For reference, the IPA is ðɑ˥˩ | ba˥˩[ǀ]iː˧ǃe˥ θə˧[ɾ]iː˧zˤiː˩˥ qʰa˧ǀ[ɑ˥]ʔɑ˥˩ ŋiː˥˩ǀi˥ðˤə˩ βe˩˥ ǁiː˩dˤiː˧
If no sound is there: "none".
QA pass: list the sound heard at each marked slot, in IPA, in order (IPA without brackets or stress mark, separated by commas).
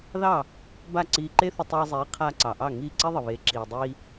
ǀ, tˤ, ɑ˩